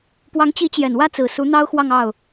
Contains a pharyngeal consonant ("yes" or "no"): no